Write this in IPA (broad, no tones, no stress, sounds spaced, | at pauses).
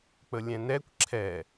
k͡p ə lʲ ɛ̃ n ɛ kʷ ǁʰ ɛ